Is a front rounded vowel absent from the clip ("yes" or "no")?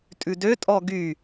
no